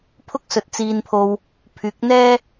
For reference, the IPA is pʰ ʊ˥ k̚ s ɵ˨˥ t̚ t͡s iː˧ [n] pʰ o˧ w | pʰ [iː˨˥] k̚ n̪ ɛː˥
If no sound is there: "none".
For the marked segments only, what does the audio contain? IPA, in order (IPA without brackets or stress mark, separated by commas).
n, yː˨˥